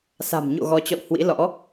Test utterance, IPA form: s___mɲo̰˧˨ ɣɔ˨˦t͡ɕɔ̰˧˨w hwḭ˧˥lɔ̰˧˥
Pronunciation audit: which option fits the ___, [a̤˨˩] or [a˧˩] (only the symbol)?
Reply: a̤˨˩